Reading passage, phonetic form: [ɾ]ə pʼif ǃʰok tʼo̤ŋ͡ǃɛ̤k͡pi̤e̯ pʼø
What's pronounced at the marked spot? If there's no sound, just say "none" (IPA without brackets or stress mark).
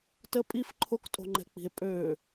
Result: t